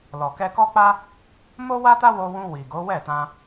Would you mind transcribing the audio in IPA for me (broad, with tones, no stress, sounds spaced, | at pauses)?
l ɔ˨ k ɛ˧ k ɔ˦ k͡p a˦ | m o˦ w a˦ t a˦ w o˧ w ũ˧ w i˨ ɡ o˨˦ w ɛ˦˨ t ã˧